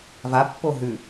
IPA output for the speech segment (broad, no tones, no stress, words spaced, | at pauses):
vapːo ɦʉ